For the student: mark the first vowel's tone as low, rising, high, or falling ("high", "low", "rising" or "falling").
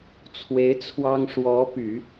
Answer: rising